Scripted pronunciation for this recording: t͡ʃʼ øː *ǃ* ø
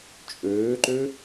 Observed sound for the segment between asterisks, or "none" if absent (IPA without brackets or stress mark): ǃ